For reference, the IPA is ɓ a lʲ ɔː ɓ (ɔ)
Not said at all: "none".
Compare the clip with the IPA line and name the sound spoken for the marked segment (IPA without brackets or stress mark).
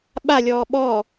ɔ